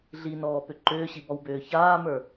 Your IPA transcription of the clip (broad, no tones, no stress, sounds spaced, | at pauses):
ɮ i n ɔː p ʏ ǃ ʏː ɕ i b ɔ w b ʏː ç aː m ə˞